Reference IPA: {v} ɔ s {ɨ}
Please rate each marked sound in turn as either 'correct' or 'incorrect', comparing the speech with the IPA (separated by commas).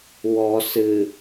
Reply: incorrect, correct